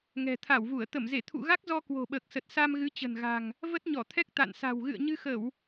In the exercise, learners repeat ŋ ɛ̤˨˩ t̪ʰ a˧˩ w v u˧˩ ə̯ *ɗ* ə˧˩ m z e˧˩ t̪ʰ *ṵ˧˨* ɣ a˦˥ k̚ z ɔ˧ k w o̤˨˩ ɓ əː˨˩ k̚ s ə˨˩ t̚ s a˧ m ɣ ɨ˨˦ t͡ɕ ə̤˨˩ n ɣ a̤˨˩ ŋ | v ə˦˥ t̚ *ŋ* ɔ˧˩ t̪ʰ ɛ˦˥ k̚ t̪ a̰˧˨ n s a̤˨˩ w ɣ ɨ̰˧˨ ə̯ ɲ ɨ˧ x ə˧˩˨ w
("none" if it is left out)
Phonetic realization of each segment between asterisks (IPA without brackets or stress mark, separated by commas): t̪, ṵ˧˨, ɲ